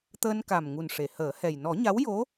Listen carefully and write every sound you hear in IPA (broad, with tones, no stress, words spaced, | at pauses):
t̪əː˧nka˨˩mŋu˨˩n ʂe˨˩˨həː˨˩˦hɛ˨˩j nɔ˨˩˦ɲa˧˥wjo˧˥